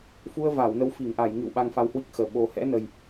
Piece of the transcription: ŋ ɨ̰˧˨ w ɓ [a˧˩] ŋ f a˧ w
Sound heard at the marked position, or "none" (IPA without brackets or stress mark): a˧